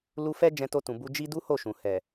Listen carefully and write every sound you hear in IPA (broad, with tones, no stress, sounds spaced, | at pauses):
l u˧ f ɛ˦ d͡ʒ ɛ̃˧ t o˧ t ũ˨ b u˧ d͡ʒ i˦ d u˦ h o˦˨ ʃ ũ˨ h ɛ˨